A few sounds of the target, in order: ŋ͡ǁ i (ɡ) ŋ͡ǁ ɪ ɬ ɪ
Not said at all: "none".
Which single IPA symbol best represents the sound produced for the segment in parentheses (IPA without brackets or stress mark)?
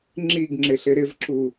ɡ